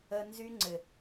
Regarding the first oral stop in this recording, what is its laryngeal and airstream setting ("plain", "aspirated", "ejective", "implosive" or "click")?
click